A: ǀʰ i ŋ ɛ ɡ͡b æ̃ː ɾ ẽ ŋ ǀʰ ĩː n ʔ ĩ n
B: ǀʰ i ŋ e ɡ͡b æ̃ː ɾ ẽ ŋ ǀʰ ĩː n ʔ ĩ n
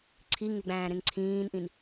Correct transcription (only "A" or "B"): B